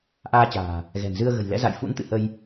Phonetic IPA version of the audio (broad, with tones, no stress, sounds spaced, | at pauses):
ʔ aː˧ t͡ɕ a̤ː˨˩ | ɣ ɛ̤˨˩ n z ɨ˧ ə̯ ɣ ə̤˨˩ j l ɛ̰˧˥ z a̰˧˨ j f ṵ˧˥ n t̪ ɨ̰˧˨ h ə˧ j